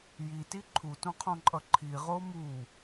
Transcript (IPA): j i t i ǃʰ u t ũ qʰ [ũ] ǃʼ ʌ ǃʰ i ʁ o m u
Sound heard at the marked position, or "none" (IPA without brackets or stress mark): õ